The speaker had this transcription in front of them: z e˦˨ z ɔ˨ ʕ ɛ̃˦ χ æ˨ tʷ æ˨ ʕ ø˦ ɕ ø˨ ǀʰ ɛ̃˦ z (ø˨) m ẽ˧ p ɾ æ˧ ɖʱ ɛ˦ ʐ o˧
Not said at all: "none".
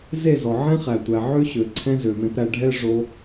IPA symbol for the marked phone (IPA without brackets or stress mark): ø˨